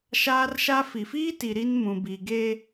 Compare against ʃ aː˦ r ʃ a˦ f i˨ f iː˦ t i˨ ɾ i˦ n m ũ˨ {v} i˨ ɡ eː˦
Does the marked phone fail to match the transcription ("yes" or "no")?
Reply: yes